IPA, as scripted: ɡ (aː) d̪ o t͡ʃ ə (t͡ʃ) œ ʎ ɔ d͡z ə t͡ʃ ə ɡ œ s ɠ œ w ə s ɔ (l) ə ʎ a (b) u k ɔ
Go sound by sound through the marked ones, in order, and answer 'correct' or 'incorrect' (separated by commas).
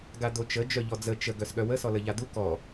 incorrect, incorrect, correct, incorrect